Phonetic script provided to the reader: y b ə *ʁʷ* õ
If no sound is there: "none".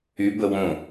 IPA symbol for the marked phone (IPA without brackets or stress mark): w